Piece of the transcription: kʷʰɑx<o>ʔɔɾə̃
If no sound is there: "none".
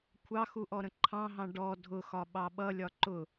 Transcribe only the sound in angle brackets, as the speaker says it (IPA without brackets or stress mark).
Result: u